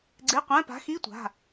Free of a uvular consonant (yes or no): no